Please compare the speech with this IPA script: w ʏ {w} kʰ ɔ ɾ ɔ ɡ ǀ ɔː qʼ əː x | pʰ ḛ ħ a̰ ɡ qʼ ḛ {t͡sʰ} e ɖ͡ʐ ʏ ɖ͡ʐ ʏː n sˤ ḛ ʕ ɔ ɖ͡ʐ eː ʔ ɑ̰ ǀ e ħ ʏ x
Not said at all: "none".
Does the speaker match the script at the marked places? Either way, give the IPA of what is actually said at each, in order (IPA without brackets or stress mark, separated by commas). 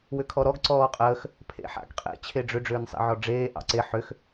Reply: none, t͡ɕʰ